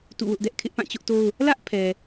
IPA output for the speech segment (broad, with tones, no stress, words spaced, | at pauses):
tṵ˦˨wʊ˦ʔdɛ˦ʔ kʰɪ˦ʔpã˦˨t͡ɕʊ˦ʔto˦ʊ̯ | lä˦ʔpʰɛ˨